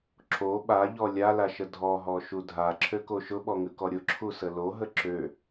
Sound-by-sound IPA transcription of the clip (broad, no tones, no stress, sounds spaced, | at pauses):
ǁ o ɓ a ʎ ɔ lʲ a l a ʃ ə dʱ ɔ ɦ ɔ ʃ u dʱ a ǁʰ ø k o ʃ ʊ ɓ ɔ ŋ ʉ k ɔ ɾʲ ʊ ǁʰ u s ə l o ɦ ə ǁ ø